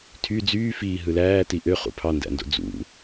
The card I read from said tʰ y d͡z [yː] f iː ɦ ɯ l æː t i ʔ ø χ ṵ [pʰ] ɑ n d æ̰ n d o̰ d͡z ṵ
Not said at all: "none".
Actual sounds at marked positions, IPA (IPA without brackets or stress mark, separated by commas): yː, pʰ